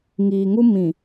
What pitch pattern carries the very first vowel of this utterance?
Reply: low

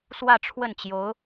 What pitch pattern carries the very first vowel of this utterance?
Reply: falling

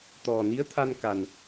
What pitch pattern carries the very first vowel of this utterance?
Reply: low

